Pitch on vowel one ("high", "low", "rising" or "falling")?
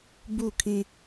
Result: falling